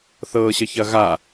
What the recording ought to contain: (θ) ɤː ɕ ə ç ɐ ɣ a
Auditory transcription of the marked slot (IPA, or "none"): θ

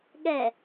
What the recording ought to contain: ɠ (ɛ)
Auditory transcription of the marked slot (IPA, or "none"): ɛ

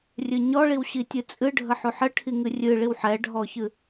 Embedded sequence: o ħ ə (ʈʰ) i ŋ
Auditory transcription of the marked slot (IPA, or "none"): ʈʰ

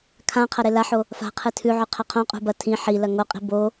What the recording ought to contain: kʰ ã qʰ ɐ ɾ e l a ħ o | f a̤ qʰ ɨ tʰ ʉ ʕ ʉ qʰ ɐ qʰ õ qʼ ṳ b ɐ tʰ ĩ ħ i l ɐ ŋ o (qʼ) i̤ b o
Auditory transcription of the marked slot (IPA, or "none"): qʼ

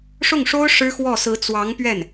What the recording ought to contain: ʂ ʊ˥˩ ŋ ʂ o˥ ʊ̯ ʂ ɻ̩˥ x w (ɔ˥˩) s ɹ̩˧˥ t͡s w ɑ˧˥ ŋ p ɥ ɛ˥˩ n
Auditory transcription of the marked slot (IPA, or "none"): ɔ˥˩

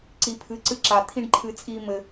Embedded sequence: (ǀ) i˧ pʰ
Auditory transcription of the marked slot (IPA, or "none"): ǀ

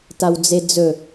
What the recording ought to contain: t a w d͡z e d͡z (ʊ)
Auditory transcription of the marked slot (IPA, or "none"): ɵ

